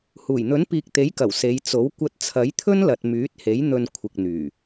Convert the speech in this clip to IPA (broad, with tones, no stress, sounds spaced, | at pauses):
h uː˨˩ j n̪ ɵ˨˥ n p iː˧ k̚ t̪ e˨˥ j k ɐ˨˩ w s e˨˧ j t͡s o˨˥ w kʷ ɐ˧ t̚ t͡sʰ ɐ˨˥ j t̪ʰ ɵ˥ n l ɐ˨ t̚ m yː˨˥ t̚ h e˨˥ j n̪ ɵ˧ n kʷʰ ɪ˨ k̚ n̪ yː˨˩